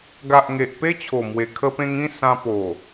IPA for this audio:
ɡ a˨ ʔ ŋ e˨ ʔ p e˦ t͡ɕʰ o˨˩ m w e˨˩ kʰ ə˧ p ẽ˧ ŋ ĩ˥˧ s ã˧ p o˨˩

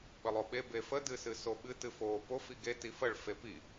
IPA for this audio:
ɓ ə lˠ o ɓ e b e f ə d ɨ s ɨ s o ɓ ɨ t ɨ f o p o f i ɡ e t i f ə ɭ f e p i

